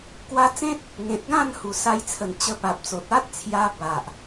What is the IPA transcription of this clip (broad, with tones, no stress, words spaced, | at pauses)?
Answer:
kwa˧t͡sẽ˦t̚ | ŋẽ˨t̚ɡã˥˧nhu˨˩ sa˧jt͡sʰə˨˩n t͡ɕə˧pa˨p̚t͡so˨t̚ a˦t̚t͡sʰja˧ ba˨ʔ